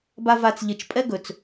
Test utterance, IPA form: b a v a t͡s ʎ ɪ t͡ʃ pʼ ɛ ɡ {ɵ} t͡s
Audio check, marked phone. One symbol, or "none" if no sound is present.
ɵ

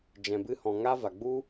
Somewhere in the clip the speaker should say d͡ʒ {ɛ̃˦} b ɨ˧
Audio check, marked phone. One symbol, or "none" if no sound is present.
ɛ̃˨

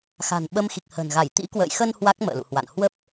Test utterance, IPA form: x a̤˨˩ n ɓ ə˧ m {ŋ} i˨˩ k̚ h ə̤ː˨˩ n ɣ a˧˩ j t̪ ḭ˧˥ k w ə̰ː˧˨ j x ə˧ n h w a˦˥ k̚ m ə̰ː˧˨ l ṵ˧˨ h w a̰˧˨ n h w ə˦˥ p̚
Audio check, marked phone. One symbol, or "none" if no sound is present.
x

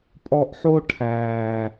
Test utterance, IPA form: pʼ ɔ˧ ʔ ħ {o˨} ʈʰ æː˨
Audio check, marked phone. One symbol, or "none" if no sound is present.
o˦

